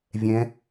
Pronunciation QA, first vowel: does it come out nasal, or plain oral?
nasal